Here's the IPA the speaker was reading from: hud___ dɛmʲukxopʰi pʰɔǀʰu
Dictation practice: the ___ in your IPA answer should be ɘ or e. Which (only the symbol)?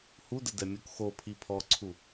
ɘ